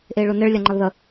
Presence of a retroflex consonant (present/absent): present